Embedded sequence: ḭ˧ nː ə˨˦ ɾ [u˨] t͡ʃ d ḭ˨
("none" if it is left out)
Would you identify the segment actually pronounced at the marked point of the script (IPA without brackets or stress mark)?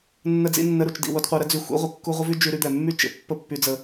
u˨